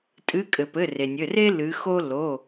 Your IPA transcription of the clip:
tʼ ɨ˨˦ kʼ ɘ˩ p ɘ˩˧˩ r e˩ nʲ ɘ˩˧˩ r e˥ l ɨ˨˦ x o˥ l o˩˧˩

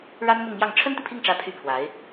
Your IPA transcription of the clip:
ɻ a˥ n m ʊ˥˧ ŋ m j ɑ˥˩ ŋ ʈ͡ʂʰ ə˥ n t̪ i˨ pʰ i˥˩ ŋ ʈ͡ʂ ä˧˥ pʰ y˥ pʰ w a˧˥ ɪ̯

